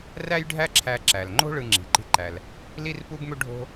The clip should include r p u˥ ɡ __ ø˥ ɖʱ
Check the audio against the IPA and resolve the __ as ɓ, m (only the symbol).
m